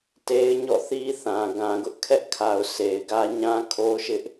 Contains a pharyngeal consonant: no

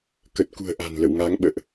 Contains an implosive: yes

